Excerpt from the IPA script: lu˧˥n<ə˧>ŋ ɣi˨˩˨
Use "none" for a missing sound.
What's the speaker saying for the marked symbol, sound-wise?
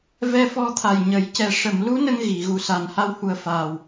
ə˧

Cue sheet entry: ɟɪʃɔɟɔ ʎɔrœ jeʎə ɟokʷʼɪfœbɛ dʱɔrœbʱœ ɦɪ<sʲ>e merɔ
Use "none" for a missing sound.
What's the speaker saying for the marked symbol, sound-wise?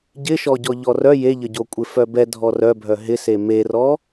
s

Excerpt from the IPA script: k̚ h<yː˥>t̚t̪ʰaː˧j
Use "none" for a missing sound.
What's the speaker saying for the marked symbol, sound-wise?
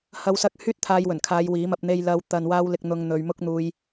yː˥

